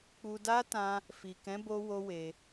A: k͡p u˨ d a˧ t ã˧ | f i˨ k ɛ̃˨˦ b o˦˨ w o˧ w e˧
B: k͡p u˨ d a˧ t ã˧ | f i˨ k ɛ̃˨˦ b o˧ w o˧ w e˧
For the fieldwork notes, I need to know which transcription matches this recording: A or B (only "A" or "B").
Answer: B